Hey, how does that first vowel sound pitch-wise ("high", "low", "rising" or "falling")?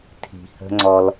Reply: low